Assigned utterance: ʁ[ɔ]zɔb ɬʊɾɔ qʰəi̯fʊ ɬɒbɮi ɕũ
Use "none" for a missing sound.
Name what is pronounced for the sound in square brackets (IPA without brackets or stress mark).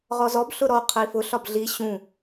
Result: ɔ